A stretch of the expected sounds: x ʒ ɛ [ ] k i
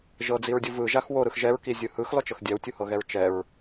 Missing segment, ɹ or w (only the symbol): ɹ